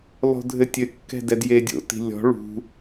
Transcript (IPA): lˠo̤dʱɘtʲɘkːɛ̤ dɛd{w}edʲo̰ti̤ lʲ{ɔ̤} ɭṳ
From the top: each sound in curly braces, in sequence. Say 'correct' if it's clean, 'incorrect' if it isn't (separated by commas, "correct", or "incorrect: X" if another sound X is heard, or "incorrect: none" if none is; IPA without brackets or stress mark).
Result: incorrect: j, correct